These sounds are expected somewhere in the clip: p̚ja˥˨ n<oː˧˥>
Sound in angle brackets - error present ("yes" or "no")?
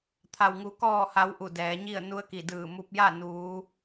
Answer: yes